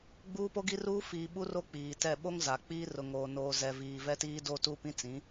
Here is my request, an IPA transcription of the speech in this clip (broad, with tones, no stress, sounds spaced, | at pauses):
ɡ͡b uː˦ p o˦ ɡ i˦ r uː˦ f iː˨ ɓ u˦ r o˦ k͡p iː˨ t ɛ˦˨ ɓ o˦ ŋ z a˨ k͡p iː˦ r ʊ˨ ŋ oː˨ n oː˨ z ɛ˨ v iː˨ v ɛ˦ t iː˦ d o˦ t u˦ p ĩ˦ t͡s ĩ˨˦